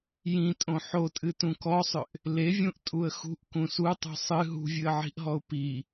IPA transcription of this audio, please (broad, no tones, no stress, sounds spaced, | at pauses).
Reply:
j ĩ tʼ õ ħ o tʼ ɨ t ũ k ɔ sˤ ʏ ʔ | l e vʲ ũ ʔ tʼ u ə̯ x ṳ ʔ k ũ s u tˤ ṳ sˤ ɨ ɦ ṳ vʲ ɨ ə̯ ʕ i̤ ʔ ɦ ɔ ʊ̯ p i